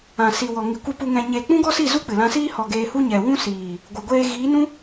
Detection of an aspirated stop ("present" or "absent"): absent